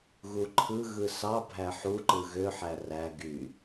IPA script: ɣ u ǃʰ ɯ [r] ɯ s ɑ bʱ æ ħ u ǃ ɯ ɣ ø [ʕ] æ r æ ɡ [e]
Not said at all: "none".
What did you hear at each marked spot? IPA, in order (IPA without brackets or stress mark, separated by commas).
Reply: ɣ, ħ, y